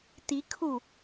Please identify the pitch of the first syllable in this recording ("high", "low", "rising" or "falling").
rising